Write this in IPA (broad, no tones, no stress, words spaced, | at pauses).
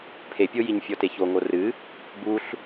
pʰepʲo jiɲfʲɔteço ŋorɨ | buɬ